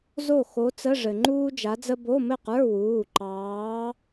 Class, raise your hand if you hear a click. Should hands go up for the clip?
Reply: yes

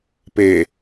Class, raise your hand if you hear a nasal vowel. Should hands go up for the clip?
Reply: no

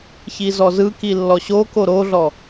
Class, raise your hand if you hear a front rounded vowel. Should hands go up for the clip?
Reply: no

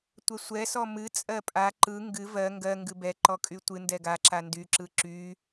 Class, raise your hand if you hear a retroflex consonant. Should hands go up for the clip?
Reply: no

